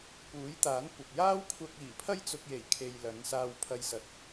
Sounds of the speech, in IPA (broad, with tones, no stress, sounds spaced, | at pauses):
p uː˨˥ j t̪ aː˨˥ n kʷ ɐ˨ p̚ j aː˥ w kʷʰ ɐ˧ k̚ iː˨˩ pʰ ɐ˥ j t͡s ʊ˧ k̚ j e˨˩ j kʰ e˨ j l ɐ˨˥ n s aː˧ w pʰ ɐ˧ j s ɐ˨ t̚